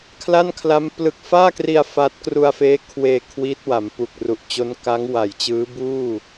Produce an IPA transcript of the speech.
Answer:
kʰla˥˩nkʰla˦˥m plɯ˨˩k̚faː˥˩kri˧a̯ fa˦˥t̚ kru˧a̯feː˦˥ kʰweː˧ kʰwiː˦˥t̚wa˩˦mpu˨˩k̚ ru˨˩ʔt͡ɕo˦˥n kaː˦˥ŋ wa˨˩jt͡ɕɯː˦˥ buː˥˩

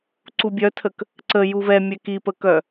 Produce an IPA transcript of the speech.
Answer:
ǀubʲœtʰək | ǀə juvɛmʲɛ kipəkœ

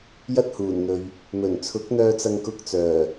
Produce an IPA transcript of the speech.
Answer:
jɐ˥t̚huː˨˩nn̪ɵ˨ɥ | mɵ˨˩n t͡sʰʊ˨˥k̚n̪œː˧t͡sɐ˧ŋ kʊ˧k̚t͡sœː˨˩

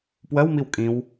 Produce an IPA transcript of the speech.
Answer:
pwɜwmiw kʼĩw

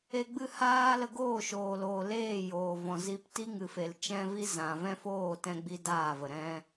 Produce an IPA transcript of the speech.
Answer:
e˧ɡ͡bɨ˦˨haː˦ lə˧ɡoː˦˨ʃoː˨loː˨ leː˦˨joː˨vɔ̃˨ zi˧p ti˦ ŋɨ˨fe˨l t͡ʃɛ̃˦vi˦ zã˨vɛ̃˦foː˦˨ tɛ̃˦ɡ͡bi˦daː˦˨və˨ ɾɛ̃˦

